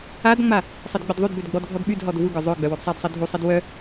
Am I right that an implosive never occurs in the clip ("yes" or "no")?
no